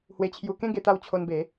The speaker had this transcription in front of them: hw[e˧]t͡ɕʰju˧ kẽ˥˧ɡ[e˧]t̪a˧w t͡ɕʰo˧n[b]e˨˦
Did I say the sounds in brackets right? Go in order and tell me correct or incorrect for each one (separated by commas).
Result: correct, correct, correct